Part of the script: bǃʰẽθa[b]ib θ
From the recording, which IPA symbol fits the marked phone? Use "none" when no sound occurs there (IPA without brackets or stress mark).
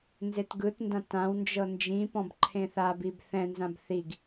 b